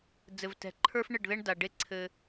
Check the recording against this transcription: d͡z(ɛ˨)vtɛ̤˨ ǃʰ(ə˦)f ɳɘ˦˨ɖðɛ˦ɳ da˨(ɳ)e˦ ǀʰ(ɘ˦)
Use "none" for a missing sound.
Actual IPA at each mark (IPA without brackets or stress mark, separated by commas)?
ɘ˨, ə˞˦, ɖ, ɘ˦